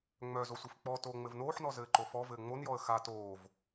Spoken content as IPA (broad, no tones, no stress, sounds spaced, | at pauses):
ŋ͡m œ z o sʷ i f k͡p ɔ t oː ŋ͡m ɘ v n oː ħ n ɔ z ɘː ǃ o f ɔ v ɘː ŋ͡m o n j ɔ ə̯ x a t oː v